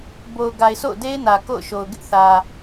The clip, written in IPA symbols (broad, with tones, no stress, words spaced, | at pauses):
bo˨ʊ̯ ɡa˨ɪ̯sʰo̰˦˨ʊ̯ de˦ɪ̯nä˨ ko̰˦˨ʊ̯ʃo˨ʊ̯ ɡɪ˦ʔ θä˨